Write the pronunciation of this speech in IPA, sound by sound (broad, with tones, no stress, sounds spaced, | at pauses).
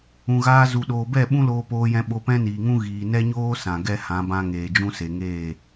ũ˨ ɣ aː˧ z u˨ ɗ oː˨ b ɛ˦˨ ɓ ũ˦ l oː˧ p oː˧ j ɛ̃˧ ɓ o˧ p ɛ̃˦ n iː˨ ŋ ũ˦ ɣ iː˨ n ɛ˦ ɲ oː˦ s ã˨ ɡ ɛ˦ h ã˨˦ b ã˧ ŋ eː˨ d͡ʒ ũ˦ s e˨ ŋ eː˦˨